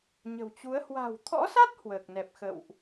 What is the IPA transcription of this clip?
ɲə̤˨˩wt͡ɕu˨˦ə̯ hwa̤˨˩wt̪ʰɔ̰˧˥sa˦˥t̚ hwəː˨˩k̚nɛ˨˩p̚xə̰˧˨wʔ

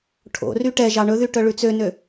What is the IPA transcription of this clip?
ʈʰo̰ ryʈɛ ʒɑɳɵðy ʈœɭʉt͡sønø

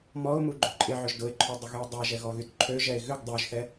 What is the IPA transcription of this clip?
mɔʊ̯ muɡ͡ǃʏǃʼɪʕʏʒ dʊɪ̯ǃʰʏ dˤʊɣyʊ̯dˤœʒɛ ɣɔɣytǃʰøʒɛɪ̯ ɣʏɡ dˤøʒθɛ

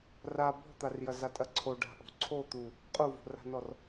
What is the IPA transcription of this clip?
ra bɔ̤t̪arjɐza tʼɐǀʰo ɖa̤ʔo̤ǀʰo t̪u | qʼuvo̤ra̤nɔr

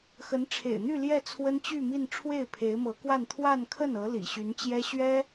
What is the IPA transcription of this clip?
xə˧˥nʈ͡ʂʰḛ˨˩ɪ̯n̪y˥˧ ljɛ˥˩t͡sʰwə˥nt͡ɕy˥˧mi˥˧n ʈ͡ʂʰwe˥˩ɪ̯pʰe˧˥ɪ̯mɤ˧˥kwa˥˧n t̪ʰwa˥˧nkʰə˥˩nɤ˧˥ lḭ˨˩ɕy˧˥n t͡ɕjɛ˥ɕɥɛ˥

